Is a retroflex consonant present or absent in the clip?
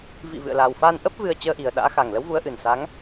absent